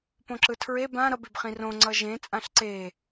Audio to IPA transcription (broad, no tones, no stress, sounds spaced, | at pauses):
p õ ǁ ɯ tʰ ɹ e b ã ɾ ʌ b e b χ ĩ r õ ŋ͡ǀ ʌ ʒ ẽ t͡sʼ ã ɬ ǀ e